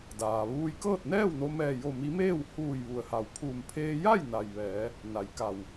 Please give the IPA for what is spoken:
d aː˩ ʋ uː˧ j k ɤː˥˨ t̚ n ɛː˥˨ w n o˧ m ɛː˧˩ j o˧˩ m i˧˥ m eː˥˨ w h uː˧˩ j ʋ u˩ ə̯ h a˩ w pʰ uː˧˩ m pʰ eː˧ j a˥˨ j n a˩ j ʋ ɛː˩˧ | n a˩˧ j k a˧˩ w

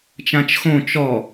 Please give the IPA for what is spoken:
t͡ʃ ã t͡ʃ x õ t͡ʃ ɔ

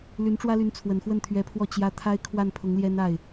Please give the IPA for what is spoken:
l y˧˥ n ʈ͡ʂ w ä˥ l y˧˥ n t͡sʰ w ə˨˩ n x w ə˥˩ n t̪ʰ ɥ ɛ˧˥ pʰ w ɔ˥˩ t͡ɕ j ä˧˥ t̪ʰ a˥ ɪ̯ kʰ w a˥˩ n pʰ ʊ˧˥ ŋ l j ɛ˥ n a˥˩ ɪ̯

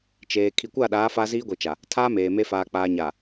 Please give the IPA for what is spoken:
t͡ʃ eː˨ kʰ i˨ kʷ a˦˨ ɗ aː˨˦ f a˦ z iː˦ ɡʷ i˨ t͡ʃ a˨ | tʰ aː˦ m eː˨ m e˦ f aː˨ k͡p aː˨ ɲ a˨

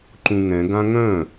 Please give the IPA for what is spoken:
ǃ ũ ŋ ɛ̃ ɡ ã ŋ œ̃

